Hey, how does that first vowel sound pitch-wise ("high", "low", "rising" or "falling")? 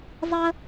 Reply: high